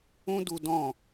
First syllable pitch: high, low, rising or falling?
high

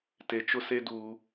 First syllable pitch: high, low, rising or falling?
low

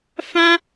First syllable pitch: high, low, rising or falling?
high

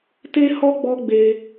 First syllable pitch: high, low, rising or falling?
high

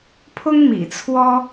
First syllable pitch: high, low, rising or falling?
high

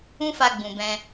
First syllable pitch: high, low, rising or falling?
high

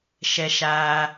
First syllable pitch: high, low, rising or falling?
low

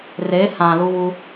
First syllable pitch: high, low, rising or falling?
rising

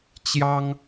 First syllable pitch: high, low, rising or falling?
high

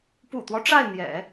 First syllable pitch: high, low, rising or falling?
low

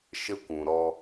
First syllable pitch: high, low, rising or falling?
high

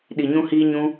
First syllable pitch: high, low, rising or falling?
low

